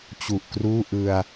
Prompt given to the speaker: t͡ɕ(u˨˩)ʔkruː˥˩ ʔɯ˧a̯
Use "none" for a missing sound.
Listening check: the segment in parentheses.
u˨˩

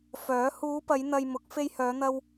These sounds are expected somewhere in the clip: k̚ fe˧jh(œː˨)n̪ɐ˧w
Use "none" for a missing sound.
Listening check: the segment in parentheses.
œː˨˧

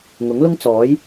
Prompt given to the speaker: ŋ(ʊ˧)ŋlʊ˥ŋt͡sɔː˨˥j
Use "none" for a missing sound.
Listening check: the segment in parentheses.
ʊ˨˥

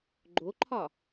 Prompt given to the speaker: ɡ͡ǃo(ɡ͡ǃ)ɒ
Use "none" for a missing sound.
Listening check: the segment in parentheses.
ǃʰ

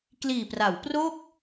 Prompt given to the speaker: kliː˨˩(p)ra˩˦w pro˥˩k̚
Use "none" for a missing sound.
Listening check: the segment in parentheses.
p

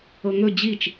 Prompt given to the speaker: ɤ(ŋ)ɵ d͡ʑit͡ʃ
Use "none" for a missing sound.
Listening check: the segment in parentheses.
ŋ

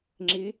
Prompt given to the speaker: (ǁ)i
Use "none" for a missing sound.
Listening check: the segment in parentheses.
ŋ͡ǁ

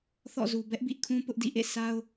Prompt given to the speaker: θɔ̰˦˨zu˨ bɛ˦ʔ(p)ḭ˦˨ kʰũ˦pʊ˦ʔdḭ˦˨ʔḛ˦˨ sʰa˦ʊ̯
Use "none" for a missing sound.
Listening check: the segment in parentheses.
b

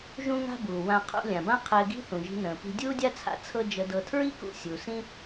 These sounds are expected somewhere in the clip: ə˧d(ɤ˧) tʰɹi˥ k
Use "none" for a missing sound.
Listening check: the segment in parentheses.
ɤ˧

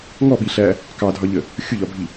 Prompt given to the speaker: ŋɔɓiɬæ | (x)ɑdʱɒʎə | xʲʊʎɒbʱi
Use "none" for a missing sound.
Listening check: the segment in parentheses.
k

